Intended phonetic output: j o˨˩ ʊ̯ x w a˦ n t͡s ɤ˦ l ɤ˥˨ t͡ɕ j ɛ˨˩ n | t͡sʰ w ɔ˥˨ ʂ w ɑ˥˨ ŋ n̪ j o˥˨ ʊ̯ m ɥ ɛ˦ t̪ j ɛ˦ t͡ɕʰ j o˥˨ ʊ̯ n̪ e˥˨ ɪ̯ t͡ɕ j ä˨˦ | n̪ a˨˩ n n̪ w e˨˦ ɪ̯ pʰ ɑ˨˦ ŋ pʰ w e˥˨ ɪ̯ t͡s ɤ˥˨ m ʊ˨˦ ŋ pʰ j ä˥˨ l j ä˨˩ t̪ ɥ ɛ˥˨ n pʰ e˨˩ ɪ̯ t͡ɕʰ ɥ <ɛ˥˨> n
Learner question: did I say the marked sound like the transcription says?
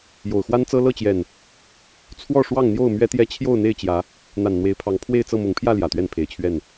yes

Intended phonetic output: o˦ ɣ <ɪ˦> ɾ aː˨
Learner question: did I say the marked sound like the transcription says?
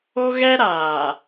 no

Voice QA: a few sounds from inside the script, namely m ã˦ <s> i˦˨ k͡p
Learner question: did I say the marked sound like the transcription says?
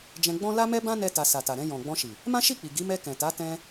no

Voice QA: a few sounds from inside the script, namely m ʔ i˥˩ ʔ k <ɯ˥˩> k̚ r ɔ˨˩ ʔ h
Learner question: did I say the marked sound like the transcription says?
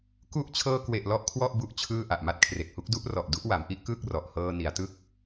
no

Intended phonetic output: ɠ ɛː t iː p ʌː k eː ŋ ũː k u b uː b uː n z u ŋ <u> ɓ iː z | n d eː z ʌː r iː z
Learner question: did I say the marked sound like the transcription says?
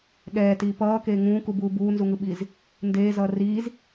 no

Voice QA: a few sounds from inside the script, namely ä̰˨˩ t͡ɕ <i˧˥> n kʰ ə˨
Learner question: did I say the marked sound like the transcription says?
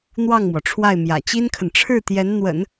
no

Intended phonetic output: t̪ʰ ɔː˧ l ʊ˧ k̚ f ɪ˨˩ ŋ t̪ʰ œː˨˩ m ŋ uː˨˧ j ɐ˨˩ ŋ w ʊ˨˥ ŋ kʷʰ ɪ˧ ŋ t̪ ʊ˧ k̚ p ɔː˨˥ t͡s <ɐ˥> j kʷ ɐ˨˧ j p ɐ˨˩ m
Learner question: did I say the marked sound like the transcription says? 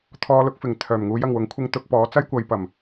yes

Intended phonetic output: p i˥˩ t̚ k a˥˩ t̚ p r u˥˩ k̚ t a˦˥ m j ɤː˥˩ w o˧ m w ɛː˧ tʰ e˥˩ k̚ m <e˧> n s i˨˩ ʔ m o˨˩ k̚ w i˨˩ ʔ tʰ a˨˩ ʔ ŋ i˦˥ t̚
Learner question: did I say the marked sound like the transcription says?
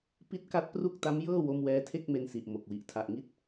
yes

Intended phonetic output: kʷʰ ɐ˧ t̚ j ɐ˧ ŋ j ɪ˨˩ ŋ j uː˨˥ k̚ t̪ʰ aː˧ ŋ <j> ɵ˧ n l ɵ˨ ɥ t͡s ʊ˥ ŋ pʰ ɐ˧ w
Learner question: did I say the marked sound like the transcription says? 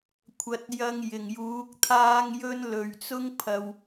yes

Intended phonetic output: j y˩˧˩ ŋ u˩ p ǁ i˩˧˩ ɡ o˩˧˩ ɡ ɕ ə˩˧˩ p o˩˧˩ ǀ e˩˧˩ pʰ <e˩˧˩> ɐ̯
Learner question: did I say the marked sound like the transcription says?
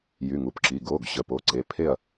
no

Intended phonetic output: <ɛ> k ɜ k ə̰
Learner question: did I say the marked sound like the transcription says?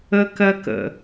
no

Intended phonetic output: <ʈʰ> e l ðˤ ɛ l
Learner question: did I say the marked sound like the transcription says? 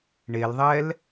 no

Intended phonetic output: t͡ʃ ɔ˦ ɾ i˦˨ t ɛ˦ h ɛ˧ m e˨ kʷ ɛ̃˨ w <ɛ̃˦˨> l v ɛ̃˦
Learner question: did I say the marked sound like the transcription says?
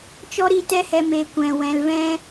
no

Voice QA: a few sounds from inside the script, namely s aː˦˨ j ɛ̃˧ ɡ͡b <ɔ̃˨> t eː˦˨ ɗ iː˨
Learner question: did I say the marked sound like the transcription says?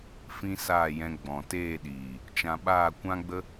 yes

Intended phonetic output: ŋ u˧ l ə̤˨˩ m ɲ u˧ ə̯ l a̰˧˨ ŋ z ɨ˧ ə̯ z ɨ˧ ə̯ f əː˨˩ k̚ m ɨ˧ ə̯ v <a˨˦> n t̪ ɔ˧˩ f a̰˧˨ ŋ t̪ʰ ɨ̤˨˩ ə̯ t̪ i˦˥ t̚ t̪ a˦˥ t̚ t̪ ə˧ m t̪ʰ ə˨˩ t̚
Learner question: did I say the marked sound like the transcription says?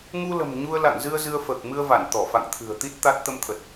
no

